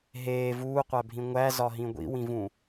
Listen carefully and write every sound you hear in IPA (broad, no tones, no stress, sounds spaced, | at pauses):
ɦ eː v uː qʷ æ bʱ ĩ ŋʷ æ z ɒ ɦ ĩ ɡʷ ḭ w ĩ v ũ